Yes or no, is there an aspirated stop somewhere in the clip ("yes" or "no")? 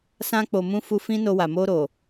no